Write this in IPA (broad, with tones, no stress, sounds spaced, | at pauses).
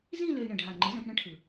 z ĩ˥˧ l ø˧ i̯ ɳ ə̃˨˩ ɖʱ a˨˩ ŋ͡ǃ ɯ˩˥ z ɛ̃˩˧ p ɳ ə̃˥˧ ʈʰ ɯ˨˩